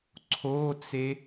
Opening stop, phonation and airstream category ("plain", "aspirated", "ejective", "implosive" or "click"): click